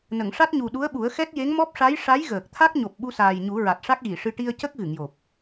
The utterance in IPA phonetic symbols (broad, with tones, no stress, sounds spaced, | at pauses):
n ə˨˩˨ ŋ ʂ a˦˥ t̚ ɲ u˨˩ ɗ u˧˥ ə̯ ɓ u˨˩˦ ə̯ x ɛ˦˥ t̚ j e˧˥ ŋ m ɔ˦˥ p̚ ʂ a˧˥ j ʂ a˧˥ j ɣ əː˨˩ k̚ t̪ʰ a˦˥ k̚ ɲ o˨˩ p̚ ɓ u˧ s aː˨˩ j ɲ u˨˩˦ ɹ a˨˩ t̚ ʂ a˦˥ k̚ ɣ i˨˩˨ ʂ ɨ˧ ʈ i˧ ə̯ c ə˦˥ k̚ ɣ ɨ˨˩˨ ŋ j o˨˩ p̚